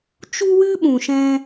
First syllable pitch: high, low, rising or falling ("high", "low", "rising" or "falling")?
high